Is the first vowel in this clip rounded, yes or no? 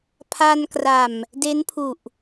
no